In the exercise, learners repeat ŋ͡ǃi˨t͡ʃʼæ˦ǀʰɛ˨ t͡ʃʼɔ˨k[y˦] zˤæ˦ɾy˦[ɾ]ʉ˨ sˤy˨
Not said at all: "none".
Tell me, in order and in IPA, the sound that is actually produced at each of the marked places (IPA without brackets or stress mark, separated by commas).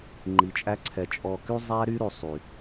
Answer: y˦, ɾ